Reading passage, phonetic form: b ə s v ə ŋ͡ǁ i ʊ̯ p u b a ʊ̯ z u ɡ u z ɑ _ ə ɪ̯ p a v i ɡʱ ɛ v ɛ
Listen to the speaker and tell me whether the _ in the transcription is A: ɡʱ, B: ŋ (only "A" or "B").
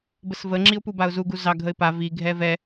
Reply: A